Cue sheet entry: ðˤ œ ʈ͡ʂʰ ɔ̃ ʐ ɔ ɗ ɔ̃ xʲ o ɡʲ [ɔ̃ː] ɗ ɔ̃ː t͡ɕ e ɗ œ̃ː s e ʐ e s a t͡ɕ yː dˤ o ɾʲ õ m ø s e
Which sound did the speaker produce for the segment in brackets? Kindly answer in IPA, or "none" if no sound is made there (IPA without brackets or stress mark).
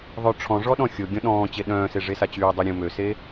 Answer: ɔ̃